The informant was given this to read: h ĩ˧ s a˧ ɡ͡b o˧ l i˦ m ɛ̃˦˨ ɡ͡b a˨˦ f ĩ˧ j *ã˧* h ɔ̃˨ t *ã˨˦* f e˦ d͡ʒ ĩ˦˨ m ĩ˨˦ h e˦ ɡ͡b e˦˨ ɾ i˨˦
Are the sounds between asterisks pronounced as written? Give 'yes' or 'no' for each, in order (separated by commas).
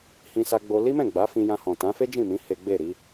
yes, yes